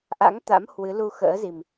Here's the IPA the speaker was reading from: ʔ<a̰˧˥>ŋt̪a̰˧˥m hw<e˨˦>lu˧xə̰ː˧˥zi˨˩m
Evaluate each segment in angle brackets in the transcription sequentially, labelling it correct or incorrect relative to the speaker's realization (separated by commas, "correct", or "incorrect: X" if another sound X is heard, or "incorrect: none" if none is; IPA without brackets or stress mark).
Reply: correct, incorrect: ɨ˨˦